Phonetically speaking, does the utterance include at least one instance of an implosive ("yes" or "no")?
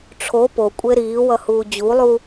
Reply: no